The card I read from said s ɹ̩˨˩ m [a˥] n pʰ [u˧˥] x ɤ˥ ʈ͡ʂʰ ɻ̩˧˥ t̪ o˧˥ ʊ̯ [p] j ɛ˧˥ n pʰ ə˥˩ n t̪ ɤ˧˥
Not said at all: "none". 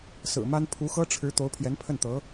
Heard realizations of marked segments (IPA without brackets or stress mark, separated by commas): a˥, u˧˥, pʰ